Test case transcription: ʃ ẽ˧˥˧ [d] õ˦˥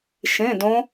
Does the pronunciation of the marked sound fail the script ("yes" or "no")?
no